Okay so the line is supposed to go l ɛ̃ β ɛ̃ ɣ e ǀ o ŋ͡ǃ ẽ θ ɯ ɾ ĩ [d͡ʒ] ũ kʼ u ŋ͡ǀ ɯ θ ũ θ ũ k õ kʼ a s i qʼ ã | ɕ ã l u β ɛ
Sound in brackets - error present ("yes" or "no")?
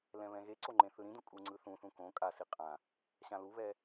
yes